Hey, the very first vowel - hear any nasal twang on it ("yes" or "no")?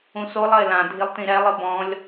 yes